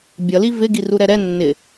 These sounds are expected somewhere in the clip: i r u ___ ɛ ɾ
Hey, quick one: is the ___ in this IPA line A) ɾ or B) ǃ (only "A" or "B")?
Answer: A